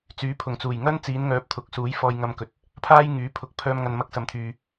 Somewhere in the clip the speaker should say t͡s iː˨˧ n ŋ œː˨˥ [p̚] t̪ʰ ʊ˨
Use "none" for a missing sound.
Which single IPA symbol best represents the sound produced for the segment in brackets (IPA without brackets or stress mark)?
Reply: p̚